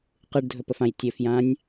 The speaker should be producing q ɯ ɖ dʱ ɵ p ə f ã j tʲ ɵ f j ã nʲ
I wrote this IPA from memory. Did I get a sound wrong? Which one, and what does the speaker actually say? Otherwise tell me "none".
none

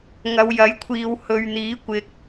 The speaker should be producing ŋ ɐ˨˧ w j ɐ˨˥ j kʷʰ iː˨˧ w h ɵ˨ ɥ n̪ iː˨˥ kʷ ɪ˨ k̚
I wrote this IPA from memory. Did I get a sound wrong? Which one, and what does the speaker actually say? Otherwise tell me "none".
none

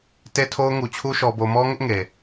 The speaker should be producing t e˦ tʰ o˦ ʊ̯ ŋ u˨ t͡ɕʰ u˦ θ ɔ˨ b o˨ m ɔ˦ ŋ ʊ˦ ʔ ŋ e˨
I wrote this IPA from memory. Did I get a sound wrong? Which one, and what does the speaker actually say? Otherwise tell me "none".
θ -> ʃ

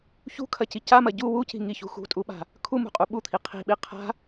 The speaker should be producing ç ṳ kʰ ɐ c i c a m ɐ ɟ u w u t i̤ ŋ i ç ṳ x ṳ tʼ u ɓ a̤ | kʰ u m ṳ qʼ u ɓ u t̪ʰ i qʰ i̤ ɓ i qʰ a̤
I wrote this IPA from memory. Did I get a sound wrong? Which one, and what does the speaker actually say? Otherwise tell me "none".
t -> c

